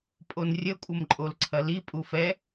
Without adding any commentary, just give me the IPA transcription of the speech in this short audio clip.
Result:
pʼ o n rʲ ə kʷʼ ə m ǃʼ o l ǀʰ ɐ l i pʼ u f ɛ

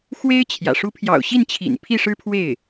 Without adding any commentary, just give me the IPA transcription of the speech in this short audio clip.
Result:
x w e˥ ɪ̯ t͡ɕʰ j ä̰˨˩ ʂ u˧˥ pʰ j ɑ̰˨˩ ʊ̯ ɕ i˥˩ n t͡ɕʰ ḭ˨˩ n pʰ i˥˩ ʂ ɻ̩˥ pʰ w e˥˩ ɪ̯

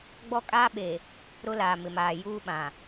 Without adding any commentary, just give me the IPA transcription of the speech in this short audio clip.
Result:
ɡ͡b ɔ˦ kʼ aː˦ ɓ e˨ | ɾ ʊ˦ l aː˨ m ɪ˨ m aː˨ j uː˦ ɓ ã˨

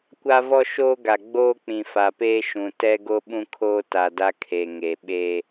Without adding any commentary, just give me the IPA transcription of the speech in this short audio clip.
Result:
kʷ a˦ v ɔ˦ ʃ oː˦ ɡ a˨ ɡ͡b oː˦ k͡p ĩ˨ f a˨ p eː˦ ʃ ũ˨ t ɛ˦ ɡ o˦ ɓ ũ˦ kʰ oː˦ t a˨ d a˦ kʰ e˨ ŋ e˨ ɓ eː˦

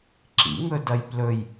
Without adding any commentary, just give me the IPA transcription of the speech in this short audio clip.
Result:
ǁ ḭ ŋ ɵ d ɐ j p l ɵ j

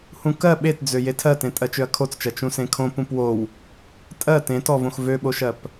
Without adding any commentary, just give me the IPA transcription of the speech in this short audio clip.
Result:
h ũ k ɜ ɓ e t d͡z ø j e tʰ ɜ t ẽ tʼ ɜ t͡ʃ ø ɐ̯ kʰ o t͡s t͡ʃ ɜ t͡ʃ ũ s ẽ kʰ õ p ũ p w o w | tʼ ɜ t ẽ t ɔ v õ x v ø ɓ o ʃ ɜ p

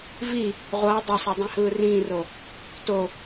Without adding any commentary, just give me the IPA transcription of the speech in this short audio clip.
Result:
v i | ʁʷ ʌː dˤ ʌ sˤ o dˤ ĩ h ɯː r ĩː r o | t o

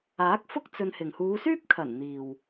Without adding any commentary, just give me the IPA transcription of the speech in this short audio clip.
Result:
aː˨˥ k̚ f ʊ˥ k̚ t͡s ɵ˧ n h ɪ˨ ŋ h uː˨˧ s yː˥ p̚ kʰ ɐ˨˩ n n̪ iː˨ w

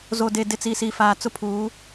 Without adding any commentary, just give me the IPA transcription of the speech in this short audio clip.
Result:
z o˨ d e˨ d ɪ˨ t͡s i˨ s i˨ f aː˨ t͡s ʊ˦ pʰ uː˨˦

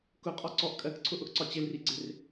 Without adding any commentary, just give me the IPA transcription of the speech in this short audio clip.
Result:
k ʊ qʼ ɔ ǀ ɔ ʔ kʼ ɜ k ǀʰ ʊ ʔ ʊ ʔ ǀ ɒ t͡ɕ ɪ l r i ɡ͡ǀ ɪ r

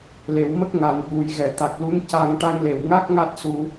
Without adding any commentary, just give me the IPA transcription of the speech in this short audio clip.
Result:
l e˨˩˨ w m ə˦˥ k̚ ŋ a˨˩˨ n ɓ u˨˩˨ j ɣ ɛ˨˩˨ t̪ a˨˩ k̚ l u˧˥ n c a˧ ŋ ʈ a˧ ŋ l e˨˩ w ŋ a˦˥ k̚ ŋ a˦˥ t̚ s u˧

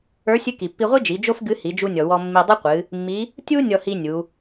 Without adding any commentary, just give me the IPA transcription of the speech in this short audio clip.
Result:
ə˞˧˥ sʲ ɨ˧˥ k i˩ pː i˧ ʁʷ i˥ d͡ʒ i˩˧ d͡ʒ o˥ f ɡ ɨ˧˥ h i˩˧ d͡ʒ u˧ nʲ ɔ˩ w ɔ˧ mː i˧ dˤ ɨ˥ qʷ ɨ˩˧ | mː i˧˥ | tʲ u˥ nʲ ɔ˧ h i˧ nʲ u˩˧

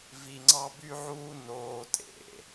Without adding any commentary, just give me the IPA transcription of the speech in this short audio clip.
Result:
v i˧ ŋ͡ǀ ɑ˥ b y˥ ʕ uː˥ n oː˧ tʼ ḛ˩

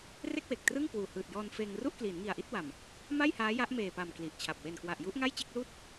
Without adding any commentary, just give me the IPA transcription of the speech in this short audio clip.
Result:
r e˥˩ k̚ w e˨˩ k̚ t r ɯ˥˩ ŋ k w uː˨˩ h ɯː˨˩ t̚ j ɔː˧ n f eː˧ ŋ r u˥˩ ʔ k l iː˩˦ n ŋ i˨˩ a̯ ʔ i˥˩ t̚ w a˨˩ m | m a˥˩ j h aː˦˥ j a˦˥ ʔ m eː˨˩ p a˨˩ m k l i˨˩ ʔ t͡ɕʰ a˨˩ p̚ w e˨˩ n k w a˨˩ ʔ j u˦˥ ʔ ŋ a˥˩ j t͡ɕ e˥˩ k̚ l uː˥˩ t̚

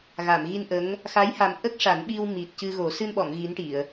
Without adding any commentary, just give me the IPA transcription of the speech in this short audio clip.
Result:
ɣ a˨˩˨ m ɣ i˧ n ʔ ə˧˥ ŋ | x a˧˥ j h a˨˩ m ʔ ə˦˥ k̚ ʂ a˨˩˦ n ɓ i˧ w m i˨˩ t̚ c ɨ˧ ɣ o˨˩˦ s ɨ˧ n ɓ ɔ˨˩˨ ŋ ɣ i˧˥ n ʈ i˨˩˨ ə̯

